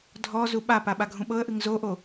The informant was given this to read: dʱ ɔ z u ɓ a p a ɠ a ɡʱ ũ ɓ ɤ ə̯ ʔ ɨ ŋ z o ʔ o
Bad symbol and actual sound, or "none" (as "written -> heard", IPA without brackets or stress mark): ɠ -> ɓ